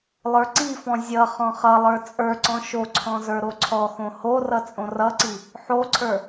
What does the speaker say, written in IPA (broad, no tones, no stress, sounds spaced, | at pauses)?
lˠ ə˞ ǀ i f ɔ̃ zʲ ʌ χ ɔ̃ χ ʌ lˠ ə˞ t͡sʼ ə˞ ǀ ɔ̃ ʃ o ǀʰ ɔ̃ z ə˞ ɾ o ǀʰ ɔ x õ h o r ʌ t͡sʼ õ r ʌ ǀ i | ħ o ǀʰ ə˞